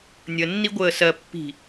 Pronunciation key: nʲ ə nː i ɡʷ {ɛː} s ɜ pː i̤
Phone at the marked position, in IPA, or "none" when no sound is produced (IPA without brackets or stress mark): əː